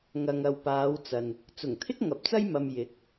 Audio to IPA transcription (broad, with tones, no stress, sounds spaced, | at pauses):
ŋ ɐ˨ ŋ ɐ˨ w p aː˨˧ w t͡s ɐ˨ n | t͡s ʊ˨˩ ŋ t̪ʰ ɪ˥ k̚ ŋ ɐ˨˥ p̚ t͡s ɐ˥ j m ɐ˧ m j ɪ˨˥ k̚